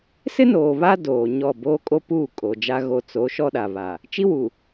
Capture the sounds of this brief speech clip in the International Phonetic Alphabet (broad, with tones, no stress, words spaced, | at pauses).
sɪ˦noː˨ βa˦ doː˨ɲɔ˦˨ boː˦kʼo˦puː˦˨ kʼo˨d͡ʒa˦ɣo˦ t͡so˨˦ ʃɔ˦ɗa˨ βa˨ | t͡ʃi˦wu˨